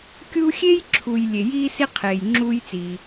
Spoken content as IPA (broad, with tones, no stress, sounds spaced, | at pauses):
kʲ u˦ xʲ e˥ j ǁʰ u˨ j lʲ e˩ j iː˦ s i˦ qʰ eː˩ j ŋ͡ǁ uː˦ j t͡s iː˨